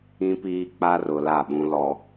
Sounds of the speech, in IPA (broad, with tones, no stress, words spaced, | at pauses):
ĩ˦piː˦k͡pa˦rʊ˨ la˦˨ɓũ˦lɔ˦